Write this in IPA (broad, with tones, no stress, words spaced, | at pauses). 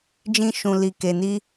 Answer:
d͡ʒĩ˦ ʃũ˧ li˧ke˧ni˦